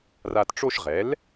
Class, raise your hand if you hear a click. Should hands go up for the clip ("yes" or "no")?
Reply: no